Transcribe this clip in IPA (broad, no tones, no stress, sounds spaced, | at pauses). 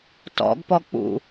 t ɔ̰ ɡ p ɔ k͡p ṵ